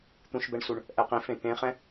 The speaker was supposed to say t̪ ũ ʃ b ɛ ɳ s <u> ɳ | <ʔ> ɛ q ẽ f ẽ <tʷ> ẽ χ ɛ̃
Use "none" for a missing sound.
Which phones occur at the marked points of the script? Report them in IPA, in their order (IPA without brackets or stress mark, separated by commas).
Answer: u, ʔ, t̪